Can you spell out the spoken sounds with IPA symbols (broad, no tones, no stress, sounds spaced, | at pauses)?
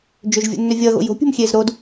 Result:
d͡ʒ ø ʒ vʲ o̰ nː ø vʲ ʌː ɣ o̰ j o̤ pʲ ṳ m xʲ eː z ɾ o d